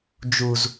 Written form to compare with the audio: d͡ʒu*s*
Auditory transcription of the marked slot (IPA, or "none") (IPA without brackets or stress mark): z